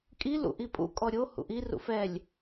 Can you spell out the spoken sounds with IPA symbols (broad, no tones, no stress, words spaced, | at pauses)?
kʼi lṵʔipʼṵ kʼɔɾʲo hṵʔi rṵfɛlʲ